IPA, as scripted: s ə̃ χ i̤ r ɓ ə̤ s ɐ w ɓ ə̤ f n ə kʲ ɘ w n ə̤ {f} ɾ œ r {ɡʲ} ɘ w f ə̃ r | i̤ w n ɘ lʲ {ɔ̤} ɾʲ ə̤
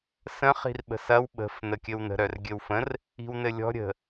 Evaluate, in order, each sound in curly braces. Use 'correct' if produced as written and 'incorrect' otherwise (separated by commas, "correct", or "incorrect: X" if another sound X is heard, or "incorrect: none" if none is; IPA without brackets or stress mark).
incorrect: none, correct, correct